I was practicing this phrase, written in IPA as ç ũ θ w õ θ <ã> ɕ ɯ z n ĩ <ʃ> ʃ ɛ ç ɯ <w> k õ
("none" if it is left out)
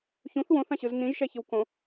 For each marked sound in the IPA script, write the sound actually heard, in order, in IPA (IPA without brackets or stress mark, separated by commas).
ã, ʒ, w